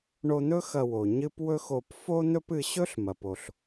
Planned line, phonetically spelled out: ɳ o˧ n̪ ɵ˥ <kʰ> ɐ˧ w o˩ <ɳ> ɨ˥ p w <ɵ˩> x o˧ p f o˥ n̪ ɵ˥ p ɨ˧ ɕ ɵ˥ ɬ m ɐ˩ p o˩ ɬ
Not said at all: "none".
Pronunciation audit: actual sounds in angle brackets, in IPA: x, ɲ, ɵ˥

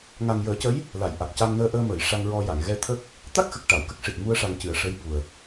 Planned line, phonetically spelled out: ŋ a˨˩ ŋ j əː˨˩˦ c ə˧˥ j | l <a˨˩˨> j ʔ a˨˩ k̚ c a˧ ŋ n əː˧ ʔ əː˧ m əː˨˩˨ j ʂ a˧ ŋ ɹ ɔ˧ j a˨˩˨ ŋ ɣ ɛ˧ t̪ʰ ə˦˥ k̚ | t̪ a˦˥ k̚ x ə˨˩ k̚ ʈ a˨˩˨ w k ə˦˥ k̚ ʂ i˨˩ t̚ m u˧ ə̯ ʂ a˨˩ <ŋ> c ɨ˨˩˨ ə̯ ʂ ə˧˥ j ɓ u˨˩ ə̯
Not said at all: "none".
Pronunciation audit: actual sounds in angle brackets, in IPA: a˨˩˨, ŋ

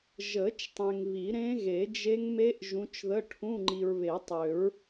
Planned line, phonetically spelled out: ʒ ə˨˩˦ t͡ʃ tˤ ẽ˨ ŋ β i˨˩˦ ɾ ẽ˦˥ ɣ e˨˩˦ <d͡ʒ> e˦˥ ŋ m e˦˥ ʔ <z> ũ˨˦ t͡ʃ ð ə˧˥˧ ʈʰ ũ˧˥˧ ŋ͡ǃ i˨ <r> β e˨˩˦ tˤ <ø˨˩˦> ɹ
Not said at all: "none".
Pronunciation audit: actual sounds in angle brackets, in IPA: d͡ʒ, ʒ, ɹ, ø˨˩˦

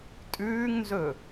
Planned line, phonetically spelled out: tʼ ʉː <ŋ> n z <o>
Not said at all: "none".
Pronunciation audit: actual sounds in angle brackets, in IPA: ŋ, ɵ

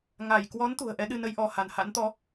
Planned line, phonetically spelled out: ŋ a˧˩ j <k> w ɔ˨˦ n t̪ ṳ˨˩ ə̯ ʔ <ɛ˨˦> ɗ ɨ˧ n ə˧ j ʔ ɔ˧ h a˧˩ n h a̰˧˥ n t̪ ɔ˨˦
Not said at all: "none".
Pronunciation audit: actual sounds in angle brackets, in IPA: k, ɛ˨˦

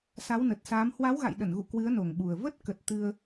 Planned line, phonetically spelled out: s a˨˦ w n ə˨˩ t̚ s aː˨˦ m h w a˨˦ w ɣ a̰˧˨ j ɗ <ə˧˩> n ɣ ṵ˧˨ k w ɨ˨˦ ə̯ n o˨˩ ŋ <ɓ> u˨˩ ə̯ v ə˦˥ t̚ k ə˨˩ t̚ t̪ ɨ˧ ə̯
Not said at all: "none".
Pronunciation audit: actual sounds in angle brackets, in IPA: ə˧˩, ɓ

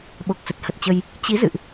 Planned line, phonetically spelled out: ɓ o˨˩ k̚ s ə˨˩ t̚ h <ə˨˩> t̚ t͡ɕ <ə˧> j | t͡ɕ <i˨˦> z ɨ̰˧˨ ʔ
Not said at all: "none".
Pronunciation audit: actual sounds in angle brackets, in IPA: ə˨˩, ə˧, i˨˦

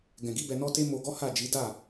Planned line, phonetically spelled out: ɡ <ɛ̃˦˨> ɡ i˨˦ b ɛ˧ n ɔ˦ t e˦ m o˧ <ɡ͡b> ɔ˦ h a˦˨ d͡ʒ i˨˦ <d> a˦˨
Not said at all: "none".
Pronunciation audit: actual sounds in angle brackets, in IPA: ɛ̃˨, ɡ, d

